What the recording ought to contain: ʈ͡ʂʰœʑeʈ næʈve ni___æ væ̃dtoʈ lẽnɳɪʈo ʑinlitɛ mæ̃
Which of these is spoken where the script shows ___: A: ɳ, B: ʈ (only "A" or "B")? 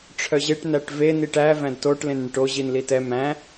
B